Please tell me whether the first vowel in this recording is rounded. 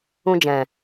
yes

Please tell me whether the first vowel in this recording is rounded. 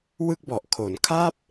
no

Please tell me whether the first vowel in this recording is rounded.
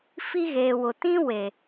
no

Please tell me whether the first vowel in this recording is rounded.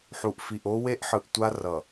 yes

